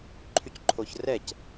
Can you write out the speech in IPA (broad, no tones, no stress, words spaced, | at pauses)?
ǃʰycǃʰoçrɛc